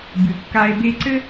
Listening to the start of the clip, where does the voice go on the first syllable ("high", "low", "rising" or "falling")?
low